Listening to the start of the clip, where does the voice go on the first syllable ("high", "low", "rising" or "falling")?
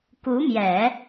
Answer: rising